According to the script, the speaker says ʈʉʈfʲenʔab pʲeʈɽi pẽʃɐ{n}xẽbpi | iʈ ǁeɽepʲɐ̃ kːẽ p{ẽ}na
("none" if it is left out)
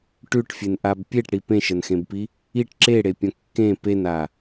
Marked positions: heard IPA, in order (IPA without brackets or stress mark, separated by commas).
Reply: n, e